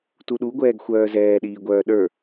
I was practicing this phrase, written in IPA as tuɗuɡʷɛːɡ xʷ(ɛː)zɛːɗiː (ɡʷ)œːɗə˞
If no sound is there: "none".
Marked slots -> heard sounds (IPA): œː, ɡʷ

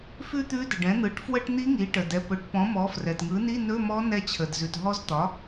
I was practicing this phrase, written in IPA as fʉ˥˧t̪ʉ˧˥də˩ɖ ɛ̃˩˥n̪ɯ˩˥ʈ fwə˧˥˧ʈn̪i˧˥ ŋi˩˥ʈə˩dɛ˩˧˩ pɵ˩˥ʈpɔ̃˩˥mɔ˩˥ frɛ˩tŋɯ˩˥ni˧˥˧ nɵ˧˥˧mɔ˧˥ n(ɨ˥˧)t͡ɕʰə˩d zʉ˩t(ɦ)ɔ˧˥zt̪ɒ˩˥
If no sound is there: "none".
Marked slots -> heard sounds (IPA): ɛ˥˧, ɦ

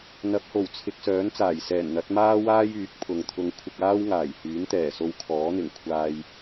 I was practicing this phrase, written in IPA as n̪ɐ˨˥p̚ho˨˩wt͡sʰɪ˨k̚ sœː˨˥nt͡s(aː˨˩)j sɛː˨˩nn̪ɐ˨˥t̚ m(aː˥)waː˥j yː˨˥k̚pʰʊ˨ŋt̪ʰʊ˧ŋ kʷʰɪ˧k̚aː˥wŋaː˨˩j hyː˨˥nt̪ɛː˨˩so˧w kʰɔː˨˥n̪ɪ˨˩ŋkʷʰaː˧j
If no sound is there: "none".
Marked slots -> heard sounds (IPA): aː˨˩, aː˥

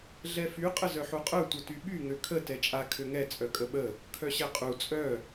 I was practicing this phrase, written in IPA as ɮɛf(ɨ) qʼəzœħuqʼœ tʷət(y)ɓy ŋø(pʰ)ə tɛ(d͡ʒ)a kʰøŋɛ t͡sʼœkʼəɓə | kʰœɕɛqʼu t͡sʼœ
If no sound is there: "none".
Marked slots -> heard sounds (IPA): y, y, kʰ, t͡ʃʼ

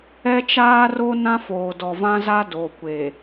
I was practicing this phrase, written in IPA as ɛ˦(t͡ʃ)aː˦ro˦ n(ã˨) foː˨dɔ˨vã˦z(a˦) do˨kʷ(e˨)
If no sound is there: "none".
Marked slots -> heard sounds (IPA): t͡ʃ, ã˦, a˦, e˨

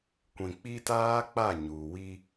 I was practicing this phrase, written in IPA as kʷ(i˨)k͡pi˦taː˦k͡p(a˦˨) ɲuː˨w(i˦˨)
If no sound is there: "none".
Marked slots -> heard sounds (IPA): ĩ˨, a˦˨, i˦

